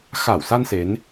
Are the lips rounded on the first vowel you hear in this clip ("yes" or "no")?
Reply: no